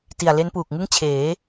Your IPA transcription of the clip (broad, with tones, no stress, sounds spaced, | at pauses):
t i˨˩ a̯ l e˦˥ n p uː˨˩ k̚ ŋ ɯ˥˩ ŋ t͡ɕʰ eː˩˦